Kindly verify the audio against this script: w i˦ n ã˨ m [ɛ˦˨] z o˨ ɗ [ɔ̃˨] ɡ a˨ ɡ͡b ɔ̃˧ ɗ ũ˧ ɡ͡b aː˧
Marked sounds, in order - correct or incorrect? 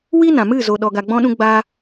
incorrect, incorrect

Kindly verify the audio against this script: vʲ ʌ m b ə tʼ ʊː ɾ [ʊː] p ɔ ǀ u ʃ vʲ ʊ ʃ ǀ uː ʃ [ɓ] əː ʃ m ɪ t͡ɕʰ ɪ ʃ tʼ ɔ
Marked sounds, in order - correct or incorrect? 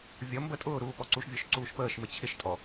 incorrect, incorrect

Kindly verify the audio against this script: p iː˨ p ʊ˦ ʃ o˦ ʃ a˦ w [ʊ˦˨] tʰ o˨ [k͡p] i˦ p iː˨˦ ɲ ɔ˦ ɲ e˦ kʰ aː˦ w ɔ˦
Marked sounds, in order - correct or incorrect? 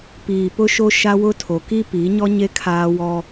incorrect, incorrect

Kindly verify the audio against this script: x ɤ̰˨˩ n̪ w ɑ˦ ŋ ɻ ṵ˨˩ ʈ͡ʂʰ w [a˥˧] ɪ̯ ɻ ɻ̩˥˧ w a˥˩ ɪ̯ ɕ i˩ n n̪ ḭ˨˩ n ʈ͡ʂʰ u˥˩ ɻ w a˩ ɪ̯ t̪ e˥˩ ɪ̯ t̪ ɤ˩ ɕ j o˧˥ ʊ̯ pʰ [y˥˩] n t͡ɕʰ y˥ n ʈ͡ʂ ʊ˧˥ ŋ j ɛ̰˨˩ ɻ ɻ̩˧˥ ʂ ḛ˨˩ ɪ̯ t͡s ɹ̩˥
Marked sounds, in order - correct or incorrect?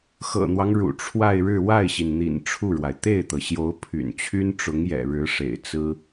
correct, incorrect

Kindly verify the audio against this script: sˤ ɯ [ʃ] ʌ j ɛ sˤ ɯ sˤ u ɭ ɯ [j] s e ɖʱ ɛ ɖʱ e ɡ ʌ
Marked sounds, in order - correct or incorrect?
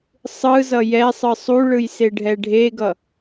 incorrect, correct

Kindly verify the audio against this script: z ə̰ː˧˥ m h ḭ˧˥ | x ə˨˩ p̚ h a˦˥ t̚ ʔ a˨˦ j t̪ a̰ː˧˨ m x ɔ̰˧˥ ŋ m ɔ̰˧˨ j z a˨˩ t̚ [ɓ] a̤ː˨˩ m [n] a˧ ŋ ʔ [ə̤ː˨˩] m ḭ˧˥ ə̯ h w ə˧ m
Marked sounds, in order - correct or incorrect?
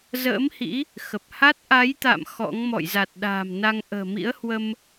incorrect, correct, correct

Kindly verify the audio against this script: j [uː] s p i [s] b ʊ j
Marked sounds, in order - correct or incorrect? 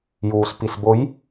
correct, correct

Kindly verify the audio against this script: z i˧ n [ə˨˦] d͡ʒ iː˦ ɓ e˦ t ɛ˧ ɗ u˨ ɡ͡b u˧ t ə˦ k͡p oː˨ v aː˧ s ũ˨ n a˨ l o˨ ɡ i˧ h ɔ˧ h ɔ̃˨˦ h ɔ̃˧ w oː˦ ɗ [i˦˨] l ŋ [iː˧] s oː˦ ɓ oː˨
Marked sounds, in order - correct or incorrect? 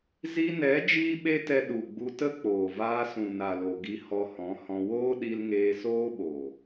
incorrect, incorrect, incorrect

